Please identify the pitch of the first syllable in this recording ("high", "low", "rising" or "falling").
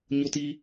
high